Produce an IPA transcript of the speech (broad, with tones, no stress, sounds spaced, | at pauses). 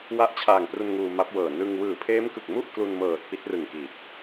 w a˦˥ ʔ t͡ɕʰ aː˨˩ ŋ p r u˧ n ŋ uː˧ m a˦˥ p̚ w ɤː˨˩ n ɯ˧ ŋ w ɯː˨˩ pʰ eː˦˥ m k ɯ˨˩ k̚ m u˥˩ ʔ k l u˧ n m ɤː˨˩ t̚ p i˦˥ t̚ r ɯ˨˩ ŋ k i˨˩ t̚